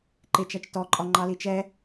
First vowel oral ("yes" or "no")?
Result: yes